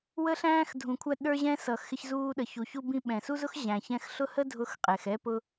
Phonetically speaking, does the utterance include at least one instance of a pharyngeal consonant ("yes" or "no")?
no